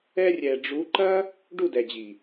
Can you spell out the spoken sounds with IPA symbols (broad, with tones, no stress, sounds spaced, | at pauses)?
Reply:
ɛ˧ rʲ ɛ˨ ɖ͡ʐ u˨˦ ǃ ɐ˦ | ɖ u˦˨ d ɛ˨ d͡ʑ i˨